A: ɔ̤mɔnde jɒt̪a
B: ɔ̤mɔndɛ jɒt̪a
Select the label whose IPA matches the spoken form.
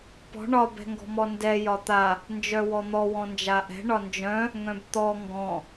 B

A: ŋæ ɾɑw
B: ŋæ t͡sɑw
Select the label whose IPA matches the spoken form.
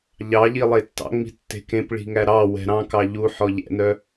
A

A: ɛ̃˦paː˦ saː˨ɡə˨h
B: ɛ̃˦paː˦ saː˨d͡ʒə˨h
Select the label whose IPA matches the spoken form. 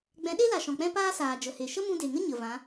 B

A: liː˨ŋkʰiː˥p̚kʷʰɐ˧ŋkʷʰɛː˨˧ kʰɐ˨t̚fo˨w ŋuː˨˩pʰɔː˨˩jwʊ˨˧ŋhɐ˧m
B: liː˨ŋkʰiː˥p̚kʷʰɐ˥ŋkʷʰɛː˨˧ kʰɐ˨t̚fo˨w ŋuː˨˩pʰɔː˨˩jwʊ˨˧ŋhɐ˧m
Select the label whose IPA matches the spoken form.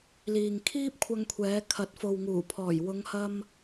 A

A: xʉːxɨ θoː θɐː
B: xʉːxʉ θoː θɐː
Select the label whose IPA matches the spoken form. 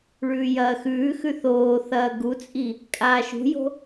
B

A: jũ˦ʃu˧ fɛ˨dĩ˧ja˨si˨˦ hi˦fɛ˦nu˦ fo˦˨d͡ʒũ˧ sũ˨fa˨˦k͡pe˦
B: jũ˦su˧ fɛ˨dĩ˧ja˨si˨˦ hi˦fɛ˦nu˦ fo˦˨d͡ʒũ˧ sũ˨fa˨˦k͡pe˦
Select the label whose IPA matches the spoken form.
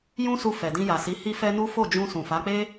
B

